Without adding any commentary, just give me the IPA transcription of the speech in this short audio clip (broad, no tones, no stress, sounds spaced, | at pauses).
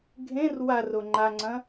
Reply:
ɡʱ ẽ r w a r o ŋ͡ǃ a ŋ͡ǀ ɐ̃